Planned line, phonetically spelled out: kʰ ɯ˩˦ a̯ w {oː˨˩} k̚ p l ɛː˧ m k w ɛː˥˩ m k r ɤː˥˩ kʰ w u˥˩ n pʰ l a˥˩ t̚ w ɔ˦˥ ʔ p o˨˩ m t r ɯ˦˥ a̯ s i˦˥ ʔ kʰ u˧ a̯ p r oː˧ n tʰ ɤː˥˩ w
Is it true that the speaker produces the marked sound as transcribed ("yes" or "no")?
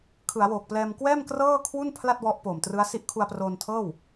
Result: yes